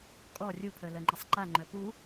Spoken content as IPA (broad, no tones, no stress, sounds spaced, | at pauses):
kʼ ɔ rʲ u pʰ œ l ɜ ŋ͡ǃ ɪ sˤ ǃ a ŋ͡ǃ œ p u